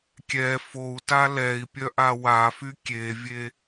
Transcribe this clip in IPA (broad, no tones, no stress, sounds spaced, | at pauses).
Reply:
kʲ ɛ f o u̯ t a l ɛ i̯ pʲ œ ʔ a w a f y kʲ e vʲ e